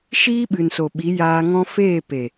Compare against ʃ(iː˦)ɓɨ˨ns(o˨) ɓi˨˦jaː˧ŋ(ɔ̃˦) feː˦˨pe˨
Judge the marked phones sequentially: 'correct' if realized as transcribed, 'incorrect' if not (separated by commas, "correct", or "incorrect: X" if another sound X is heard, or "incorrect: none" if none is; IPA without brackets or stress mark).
correct, correct, correct